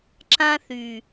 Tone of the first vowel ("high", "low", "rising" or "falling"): high